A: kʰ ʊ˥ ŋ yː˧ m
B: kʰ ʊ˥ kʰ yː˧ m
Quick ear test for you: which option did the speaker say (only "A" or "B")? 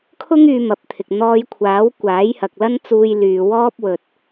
A